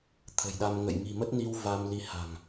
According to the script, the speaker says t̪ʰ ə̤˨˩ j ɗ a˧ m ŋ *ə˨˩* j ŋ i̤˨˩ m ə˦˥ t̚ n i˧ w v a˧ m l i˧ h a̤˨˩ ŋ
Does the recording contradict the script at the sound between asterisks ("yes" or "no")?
yes